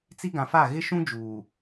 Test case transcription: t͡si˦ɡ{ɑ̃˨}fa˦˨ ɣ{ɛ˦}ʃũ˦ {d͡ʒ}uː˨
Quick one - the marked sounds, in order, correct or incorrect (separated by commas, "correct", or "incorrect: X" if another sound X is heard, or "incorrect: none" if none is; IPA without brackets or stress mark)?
incorrect: ã˨, incorrect: ɪ˦, correct